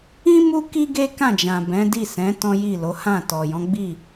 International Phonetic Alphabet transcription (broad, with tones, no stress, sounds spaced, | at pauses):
ĩ˦ m u˦ k i˦ ɡ e˦ k ã˦˨ d͡ʒ ã˨ b ɛ̃˨˦ d i˦˨ s ɛ̃˨˦ t ɔ̃˦ j i˦˨ l o˨˦ h ã˦˨ t ɔ˨ j ɔ̃˨˦ ɡ͡b i˦˨